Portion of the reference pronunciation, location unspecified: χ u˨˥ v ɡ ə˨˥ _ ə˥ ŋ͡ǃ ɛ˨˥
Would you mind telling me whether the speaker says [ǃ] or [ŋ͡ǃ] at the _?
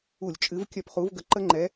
ǃ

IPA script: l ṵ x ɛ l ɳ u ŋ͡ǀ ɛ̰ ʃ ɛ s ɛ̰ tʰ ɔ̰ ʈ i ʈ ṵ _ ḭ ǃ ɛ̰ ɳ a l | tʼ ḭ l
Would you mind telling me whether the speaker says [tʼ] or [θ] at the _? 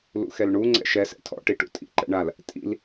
tʼ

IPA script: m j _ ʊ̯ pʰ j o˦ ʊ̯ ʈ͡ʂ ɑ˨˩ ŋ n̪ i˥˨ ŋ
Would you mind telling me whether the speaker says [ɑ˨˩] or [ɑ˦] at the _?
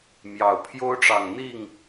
ɑ˨˩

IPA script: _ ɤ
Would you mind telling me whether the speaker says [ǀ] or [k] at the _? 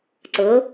ǀ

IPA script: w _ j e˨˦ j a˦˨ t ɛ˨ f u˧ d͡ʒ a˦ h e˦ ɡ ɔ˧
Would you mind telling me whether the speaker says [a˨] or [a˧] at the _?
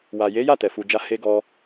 a˨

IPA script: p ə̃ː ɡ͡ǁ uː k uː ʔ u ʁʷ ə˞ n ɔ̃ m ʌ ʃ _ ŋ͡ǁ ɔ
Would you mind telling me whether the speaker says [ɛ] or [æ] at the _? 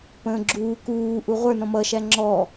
æ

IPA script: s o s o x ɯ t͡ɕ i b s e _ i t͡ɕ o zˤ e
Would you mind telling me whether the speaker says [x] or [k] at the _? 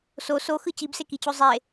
k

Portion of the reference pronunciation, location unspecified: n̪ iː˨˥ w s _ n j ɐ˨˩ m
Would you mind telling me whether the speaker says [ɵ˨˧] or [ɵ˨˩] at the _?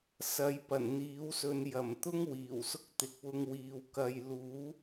ɵ˨˧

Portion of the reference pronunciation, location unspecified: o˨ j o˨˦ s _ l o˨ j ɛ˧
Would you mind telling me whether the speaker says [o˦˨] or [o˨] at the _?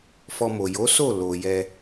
o˦˨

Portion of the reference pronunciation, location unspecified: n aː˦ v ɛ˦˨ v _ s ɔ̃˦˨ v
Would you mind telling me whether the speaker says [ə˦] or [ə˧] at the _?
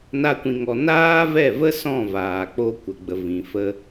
ə˦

